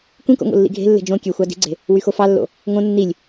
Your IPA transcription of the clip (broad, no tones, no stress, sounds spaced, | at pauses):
kʷ ĩ k o̰ ŋ o̰ lː ḭ ɡʱ e̤ lː e̤ d͡ʒ õ kʲ ø xʷ ɑ d i̤ ɡ͡ǀ e̤ | w y x o f ɑ lː o̰ | ŋ õ nː i lʲ